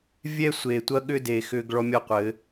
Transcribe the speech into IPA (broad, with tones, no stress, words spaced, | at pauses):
vʲɛ˦sʷeː˨tʷɐ˦ ɠʏ˦de˨ xʏː˦ɡɭɔ˦mʲɔ˦qʷɘ˨˦